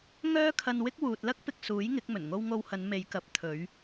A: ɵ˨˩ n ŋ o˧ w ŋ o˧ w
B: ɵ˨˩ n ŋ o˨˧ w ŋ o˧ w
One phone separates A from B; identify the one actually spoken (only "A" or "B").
A